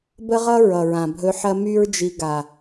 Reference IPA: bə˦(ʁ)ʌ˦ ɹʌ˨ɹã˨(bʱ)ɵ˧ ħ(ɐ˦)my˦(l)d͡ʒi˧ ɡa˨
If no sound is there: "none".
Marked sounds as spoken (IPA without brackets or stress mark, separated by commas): ʁ, bʱ, ɐ˦, ɹ